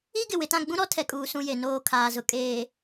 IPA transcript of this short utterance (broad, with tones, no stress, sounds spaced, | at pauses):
i˦ ɡ ɪ˨ w ɪ˨ t ã˦˨ ɡ͡b ũ˦ ɾ ɔ˦ tʰ ɛ˨ kʼ uː˨ s ũ˦ j e˨ n oː˦ kʰ aː˨ z ʊ˨ kʼ eː˨